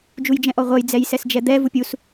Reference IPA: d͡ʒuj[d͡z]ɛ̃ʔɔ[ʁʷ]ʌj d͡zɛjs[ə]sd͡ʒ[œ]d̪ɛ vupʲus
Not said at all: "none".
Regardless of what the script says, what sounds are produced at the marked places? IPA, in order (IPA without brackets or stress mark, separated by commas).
d͡ʒ, ʁʷ, ɛ, ɛ